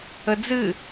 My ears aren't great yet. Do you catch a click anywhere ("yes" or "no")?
no